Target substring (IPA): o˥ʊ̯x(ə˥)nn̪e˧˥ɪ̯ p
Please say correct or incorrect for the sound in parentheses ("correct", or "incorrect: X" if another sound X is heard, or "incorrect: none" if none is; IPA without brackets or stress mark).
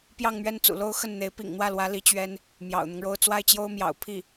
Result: incorrect: ə˥˩